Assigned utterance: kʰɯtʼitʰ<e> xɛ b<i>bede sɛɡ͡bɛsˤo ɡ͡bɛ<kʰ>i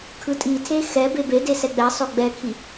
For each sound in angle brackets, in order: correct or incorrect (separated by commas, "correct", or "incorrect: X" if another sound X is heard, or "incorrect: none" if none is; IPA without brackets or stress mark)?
correct, incorrect: e, correct